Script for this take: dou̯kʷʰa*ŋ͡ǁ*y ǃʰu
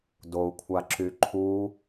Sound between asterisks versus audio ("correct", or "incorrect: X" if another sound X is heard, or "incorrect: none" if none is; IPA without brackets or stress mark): incorrect: ǁ